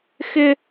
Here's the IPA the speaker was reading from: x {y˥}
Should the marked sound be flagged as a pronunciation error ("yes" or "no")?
yes